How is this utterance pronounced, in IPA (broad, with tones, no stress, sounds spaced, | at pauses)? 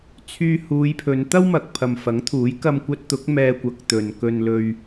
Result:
t͡sʰ yː˧ h uː˨˧ j pʰ ɵ˨˧ n t̪ ɐ˥ w m ɐ˨ k̚ pʰ ɐ˨ m f ɐ˨˥ ŋ t̪ʰ uː˨˥ j k ɐ˧ m kʷ ɐ˧ t̚ t̪ ʊ˨˥ k̚ m ɛː˧ kʷ ɐ˨˥ k̚ t̪ ɵ˨ n k ɵ˧ n l ɵ˧ ɥ